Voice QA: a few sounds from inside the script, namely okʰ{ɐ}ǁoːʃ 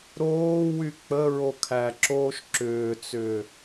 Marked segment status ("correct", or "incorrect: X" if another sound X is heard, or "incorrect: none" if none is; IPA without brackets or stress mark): incorrect: æ